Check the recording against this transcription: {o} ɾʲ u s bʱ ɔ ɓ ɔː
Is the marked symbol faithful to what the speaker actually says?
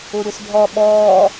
no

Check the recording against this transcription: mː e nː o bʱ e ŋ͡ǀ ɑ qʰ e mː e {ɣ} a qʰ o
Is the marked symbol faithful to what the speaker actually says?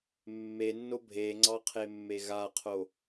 yes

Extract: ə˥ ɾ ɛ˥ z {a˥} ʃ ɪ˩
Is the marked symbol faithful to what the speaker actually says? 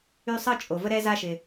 yes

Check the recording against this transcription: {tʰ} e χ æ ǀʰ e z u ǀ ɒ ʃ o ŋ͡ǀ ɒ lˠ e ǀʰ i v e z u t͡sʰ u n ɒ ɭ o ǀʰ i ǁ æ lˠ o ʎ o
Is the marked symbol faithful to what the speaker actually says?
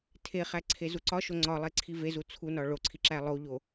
yes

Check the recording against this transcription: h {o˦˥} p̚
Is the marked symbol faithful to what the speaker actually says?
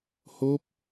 yes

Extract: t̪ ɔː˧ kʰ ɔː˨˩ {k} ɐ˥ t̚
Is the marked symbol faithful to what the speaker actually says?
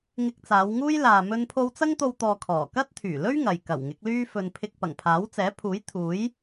yes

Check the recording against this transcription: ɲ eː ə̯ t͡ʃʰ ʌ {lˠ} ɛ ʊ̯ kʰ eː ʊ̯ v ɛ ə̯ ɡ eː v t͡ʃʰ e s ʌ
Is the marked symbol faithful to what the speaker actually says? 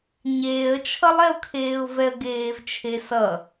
yes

